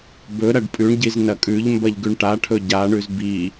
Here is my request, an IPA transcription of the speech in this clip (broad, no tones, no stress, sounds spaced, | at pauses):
b ɵ ɾ ɐ ɖ pʼ ʉ ɳ ɟ i z n ɐ kʼ ʉ ʎ m b ɐ ʎ ɡ ʉ ɳ ʈ a ʈʰ ɵ ɟ a ɳ ʉ z b i